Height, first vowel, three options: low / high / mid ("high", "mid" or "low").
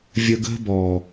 mid